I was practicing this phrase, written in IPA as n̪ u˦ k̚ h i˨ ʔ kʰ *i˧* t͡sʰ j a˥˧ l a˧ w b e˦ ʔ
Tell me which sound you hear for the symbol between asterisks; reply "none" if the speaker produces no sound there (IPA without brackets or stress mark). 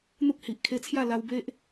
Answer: e˧